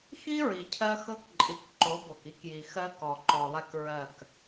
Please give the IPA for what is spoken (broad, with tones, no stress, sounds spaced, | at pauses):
x i˦ ɹ i˨ cʰ ɜ˦ x ɤ˦ k ǃʼ i˨ k ǃ o˨˦ b o˨ k i˦ k j i˨ x ɜ˦ k ɔ˨ ǃ ɔ˨ lˠ ɛ˦ k ɹ ɜ˦˨ k